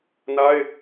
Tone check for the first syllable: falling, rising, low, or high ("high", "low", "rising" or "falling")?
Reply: high